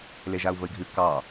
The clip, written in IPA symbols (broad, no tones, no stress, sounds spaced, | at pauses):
l e ʒ a u̯ v ə i̯ ɡʱ ʉ k ɑ